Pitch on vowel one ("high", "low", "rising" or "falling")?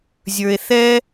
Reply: low